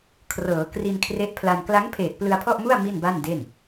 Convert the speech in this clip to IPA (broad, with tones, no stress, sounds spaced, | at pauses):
kʰ r ɤː˩˦ k r i˧ n kʰ r e˦˥ ʔ pʰ l a˧ n k l a˦˥ ŋ pʰ eː˨˩ t̚ p l ɯ˧ a̯ pʰ ɔ˥˩ ʔ m u˥˩ a̯ m i˥˩ n b a˥˩ n d e˥˩ n